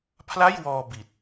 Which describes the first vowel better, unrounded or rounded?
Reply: unrounded